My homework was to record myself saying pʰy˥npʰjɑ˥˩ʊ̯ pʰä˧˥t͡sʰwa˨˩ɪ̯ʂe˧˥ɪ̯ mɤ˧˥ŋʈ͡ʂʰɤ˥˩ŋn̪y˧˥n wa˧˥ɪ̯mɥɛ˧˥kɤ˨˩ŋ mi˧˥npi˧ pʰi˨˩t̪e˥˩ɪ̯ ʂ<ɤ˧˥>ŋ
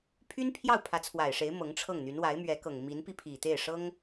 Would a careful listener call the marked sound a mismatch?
yes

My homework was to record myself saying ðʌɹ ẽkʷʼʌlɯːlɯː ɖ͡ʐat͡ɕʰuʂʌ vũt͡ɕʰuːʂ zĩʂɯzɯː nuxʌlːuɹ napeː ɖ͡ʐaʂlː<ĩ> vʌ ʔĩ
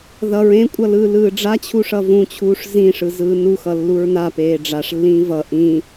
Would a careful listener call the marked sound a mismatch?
yes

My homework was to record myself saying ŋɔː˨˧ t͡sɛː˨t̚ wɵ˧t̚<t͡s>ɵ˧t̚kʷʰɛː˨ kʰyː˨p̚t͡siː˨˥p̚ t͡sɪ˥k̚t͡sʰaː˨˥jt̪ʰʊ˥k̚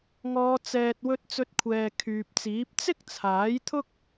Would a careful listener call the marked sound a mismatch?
no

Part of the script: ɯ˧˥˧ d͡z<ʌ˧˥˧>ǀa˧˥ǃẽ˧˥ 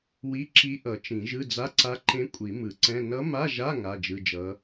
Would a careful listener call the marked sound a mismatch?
yes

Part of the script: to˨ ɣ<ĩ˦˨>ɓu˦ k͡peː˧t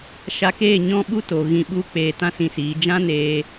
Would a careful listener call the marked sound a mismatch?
yes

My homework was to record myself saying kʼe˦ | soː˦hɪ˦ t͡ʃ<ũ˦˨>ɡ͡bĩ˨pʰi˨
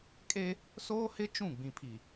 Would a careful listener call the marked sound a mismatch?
no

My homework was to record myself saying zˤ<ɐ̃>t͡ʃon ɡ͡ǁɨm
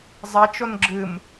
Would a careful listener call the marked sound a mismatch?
yes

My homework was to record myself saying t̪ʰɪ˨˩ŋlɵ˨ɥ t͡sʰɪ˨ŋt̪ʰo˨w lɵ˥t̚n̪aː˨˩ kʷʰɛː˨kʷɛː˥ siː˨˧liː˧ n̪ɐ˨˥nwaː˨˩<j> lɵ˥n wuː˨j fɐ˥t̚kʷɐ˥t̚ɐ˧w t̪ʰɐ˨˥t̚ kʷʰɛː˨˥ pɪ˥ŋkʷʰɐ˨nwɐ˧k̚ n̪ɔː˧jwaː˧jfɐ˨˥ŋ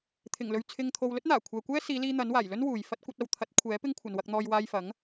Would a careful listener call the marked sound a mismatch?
no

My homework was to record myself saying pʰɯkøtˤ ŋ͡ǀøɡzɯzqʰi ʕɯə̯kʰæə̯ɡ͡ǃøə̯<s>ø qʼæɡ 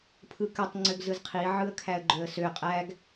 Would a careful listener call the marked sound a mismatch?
no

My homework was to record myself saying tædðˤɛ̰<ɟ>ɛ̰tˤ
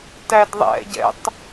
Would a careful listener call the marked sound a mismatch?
no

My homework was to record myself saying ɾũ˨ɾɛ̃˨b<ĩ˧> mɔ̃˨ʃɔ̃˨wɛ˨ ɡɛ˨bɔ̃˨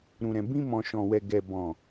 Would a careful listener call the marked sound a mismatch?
no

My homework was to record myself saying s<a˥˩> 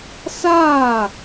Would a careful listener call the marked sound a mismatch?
no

